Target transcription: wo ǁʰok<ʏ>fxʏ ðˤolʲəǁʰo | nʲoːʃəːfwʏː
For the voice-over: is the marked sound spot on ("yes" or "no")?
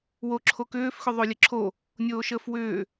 no